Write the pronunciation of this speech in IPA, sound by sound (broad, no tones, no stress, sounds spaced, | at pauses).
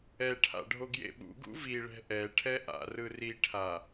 ɛ ʈʰ a̰ ɖʱ o ɡ j ḛ ɓ ṵ ɡ ṵ v i ɭ ɛ̤ ʔ ɛ ʈʰ ɛ ʔ a̰ r ɯ r i ʈʰ a